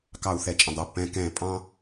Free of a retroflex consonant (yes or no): yes